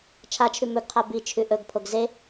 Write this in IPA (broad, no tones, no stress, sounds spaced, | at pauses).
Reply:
t͡ʃʰ a t͡ʃʰ ʉ m ɵ ɡ qʰ a b i t͡ʃʰ ʉ ʔ ɵ ɡ pʰ o ɡ z e